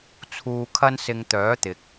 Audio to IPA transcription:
t͡sʰ uː˧ kʰ ɐ˥ n s ɪ˧ ŋ t̪ œː˨˥ t̪ ɪ˨ k̚

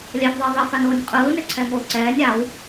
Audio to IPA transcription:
lʲ ɛ f ðˤ e ðˤ i f a n oː nʲ qʼ ɯː n e ǀʰ ɛː ŋ oː ǀ ɛː nʲ a w

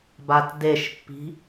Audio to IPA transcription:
b a t d e ʃ pː i̤

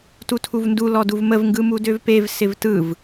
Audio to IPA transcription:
t u tʰ u v n d u l ɔ d u v m ə v ŋ ɡ ɯ m u d ø v p e v s ɪ v t ɯ v

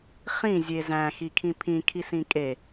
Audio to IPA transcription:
χ ĩ zʲ e z æ̃ x i kʰ ĩ pʰ ĩ kʰ i s ĩ kʼ e

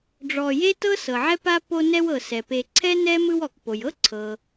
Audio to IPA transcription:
ɖ͡ʐ ɔ˨ j e˥ t ɤ˥ s ɤ˩ ʕ ɛ˥ p a˥ p o˦ n ɛ˦ w ɤ˩ s ɛ˩ p e˨ ǀʰ ɛ˥ n ɛ˥ m ɯ˦ w ɔ˩ k p o˩ j ɤ˥ ǀʰ ɤ˩

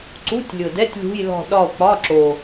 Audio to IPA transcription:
ǀ u˧˥˧ tʲ lʲ ʊ˨˩ d ɛ˧˥˧ tʲ lʲ ṳ˧˥˧ j l ɔ̤˦˨ ɗ ɒ˦˨ o̯ k͡p ɒ˧˥˧ ǁ o˨˩

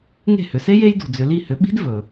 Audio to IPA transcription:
ŋ e̤˥˩ h ʏ˩˥ s e˥ j e˥ j d ṳ˨ d͡z ʏ˨ l i˥˩ h ʏ˩˥ ɓ i̤˥ d v ɵ˨

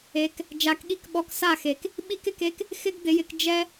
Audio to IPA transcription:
e˨˦ k | d͡ʒ a˨˦ k ɠ i˧ k ɓ ɔ˧ k s a˦˨ x e˨ k | ɓ i˦ k ɪ˧ k e˦ k | x ɪ˦ ɡ d̪ ɪ˨˦ j ɪ˧ k d͡ʒ ɛ˦

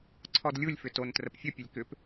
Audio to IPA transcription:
ǀʰ ɔ d lʲ u lʲ f ʏ t o n t r ə p fʲ ə pʲ ə lʲ k ʏ p

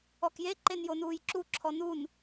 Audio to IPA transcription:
ɔ k j e ǃ e n j o n uː j ǁ u ǁʰ ɔ n u n

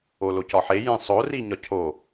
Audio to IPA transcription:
o l o c ɒ ħ e j ẽ sˤ o r i ɲ ɒ cʰ o

